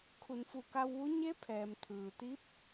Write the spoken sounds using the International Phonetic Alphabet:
kʰ u˩˧ n f u˧˩ k a˧ w ʋ u˧˥ ɲ e˧˥ pʰ ɛː˩ m t̪ʰ ɯː˩ t̪ i˧˥ p̚

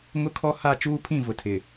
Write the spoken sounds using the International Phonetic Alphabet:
ŋ ʊ˦ kʰ ɔ˦ h a˦˨ t͡ʃ uː˦ pʰ ĩ˦˨ v ʊ˨ tʰ ɪ˨

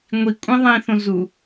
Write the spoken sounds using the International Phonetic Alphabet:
ŋʷ i kʷʼ ĩ ðˤ ĩ θ õ z u

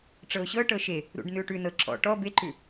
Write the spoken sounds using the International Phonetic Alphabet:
ʈ͡ʂ ɤ ʊ̯ ɕ ɤ ʈ ɤ ʃ e | ɾ ṵ ɖ n ʉ ʊ̯ ʈ ʉ n ɤ ǁ ɔ̰ ʈ ɔ b e ǃ ʉ

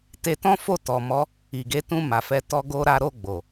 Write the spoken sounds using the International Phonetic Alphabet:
t e˧ t ɔ̃˦ f o˦˨ t ɔ˨ m ɔ˨˦ | i˨ ɡ e˧ t ũ˧ m a˨ f ɛ˧ t ɔ˧ ɡ o˦ ɾ a˦ ɾ o˦˨ ɡ͡b o˨

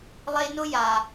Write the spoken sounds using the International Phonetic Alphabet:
lˠ e˦ n ʊ˥ j a˨

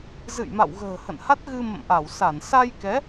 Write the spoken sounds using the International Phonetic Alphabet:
z ɨ̰˧˨ j m a̰˧˨ w ɣ ə̤ː˨˩ h ə̰˧˨ n h a˦˥ t̚ ɣ ɨ˧ m ə̰˧˨ m ʔ a˧˩ w s a˧˩ n s a˧ j k ɛ˨˦

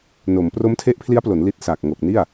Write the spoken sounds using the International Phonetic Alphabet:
n o˩˦ m p r o˦˥ m tʰ e˦˥ ʔ pʰ l i˦˥ a̯ p l o˩˦ n l i˦˥ t̚ s a˨˩ k̚ ŋ o˨˩ k̚ n i˥˩ a̯

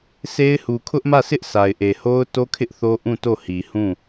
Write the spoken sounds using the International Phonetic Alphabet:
sʰ e˦ ɪ̯ h u˨ kʰ ʊ˦ ʔ m ä˦˨ s ɪ˦ ʔ sʰ a˨ ɪ̯ ʔ e˨ h o˦ ʊ̯ t o˦ kʰ ɪ˦ ʔ θ o˦ ʔ ũ˦˨ t o˦˨ h i˨ h ũ˦˨

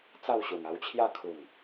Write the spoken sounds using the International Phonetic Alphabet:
t͡s a˥˧ w ɕ u˨˩ ŋ a˧ w t͡ɕʰ j a˥˧ kʰ u˨˩ ŋ

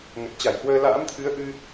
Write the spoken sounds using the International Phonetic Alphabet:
ŋ ə˨˩ t̚ t͡ɕ a˧˩ j h w əː˧ l a̰ː˧˥ m t̪ʰ ɨ˨˦ ə̯ ʔ ɨ˧

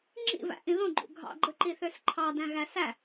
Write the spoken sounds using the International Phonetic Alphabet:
ŋ͡ǁ ḭ v æ̰ ʔ ĩ ð õ ɡ͡ǃ ṵ ɡʱ ɑ̰ ɡ͡ǃ ɯ ǃ i θ ø s ǃʰ ɑ d æ̃ ɣ æ s æ

